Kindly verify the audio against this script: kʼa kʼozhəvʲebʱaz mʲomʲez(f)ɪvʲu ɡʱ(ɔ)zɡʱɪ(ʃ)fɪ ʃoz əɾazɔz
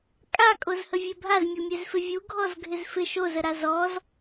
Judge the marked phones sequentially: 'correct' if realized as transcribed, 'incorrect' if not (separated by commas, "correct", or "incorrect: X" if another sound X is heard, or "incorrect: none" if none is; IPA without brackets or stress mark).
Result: correct, correct, incorrect: z